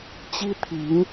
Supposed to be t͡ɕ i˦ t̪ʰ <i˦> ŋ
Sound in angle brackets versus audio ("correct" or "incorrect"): incorrect